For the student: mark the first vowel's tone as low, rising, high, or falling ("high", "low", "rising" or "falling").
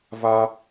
high